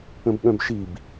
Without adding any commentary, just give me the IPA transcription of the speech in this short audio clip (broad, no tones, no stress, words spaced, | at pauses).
ə̃bɠœ̃bʃib